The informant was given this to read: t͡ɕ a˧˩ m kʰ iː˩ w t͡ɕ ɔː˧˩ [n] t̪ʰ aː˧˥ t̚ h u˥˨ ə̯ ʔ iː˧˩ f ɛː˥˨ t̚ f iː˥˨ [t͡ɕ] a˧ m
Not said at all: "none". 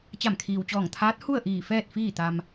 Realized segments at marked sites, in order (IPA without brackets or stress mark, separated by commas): ŋ, t̪